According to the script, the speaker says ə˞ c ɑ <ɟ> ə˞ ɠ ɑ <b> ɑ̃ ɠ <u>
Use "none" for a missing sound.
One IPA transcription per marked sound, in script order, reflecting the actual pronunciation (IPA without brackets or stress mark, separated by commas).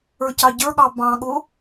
ɟ, b, ʊ